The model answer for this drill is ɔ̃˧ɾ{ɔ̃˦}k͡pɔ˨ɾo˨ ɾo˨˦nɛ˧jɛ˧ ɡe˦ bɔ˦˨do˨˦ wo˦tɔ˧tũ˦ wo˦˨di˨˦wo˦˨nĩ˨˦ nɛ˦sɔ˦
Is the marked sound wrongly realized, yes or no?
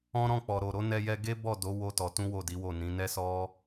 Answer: yes